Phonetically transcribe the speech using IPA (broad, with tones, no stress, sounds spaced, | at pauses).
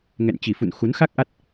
ŋ ɛ̰˧˨ n t͡ɕ i˨˩ f ṵ˧˨ n x u˨˦ n x a˦˥ k̚ ʔ a˦˥ t̚